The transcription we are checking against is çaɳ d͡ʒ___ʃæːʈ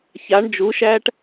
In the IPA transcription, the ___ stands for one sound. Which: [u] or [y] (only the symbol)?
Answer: u